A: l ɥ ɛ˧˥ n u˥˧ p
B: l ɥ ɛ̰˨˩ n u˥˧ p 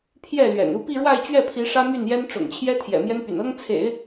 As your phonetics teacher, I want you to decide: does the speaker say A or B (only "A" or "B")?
B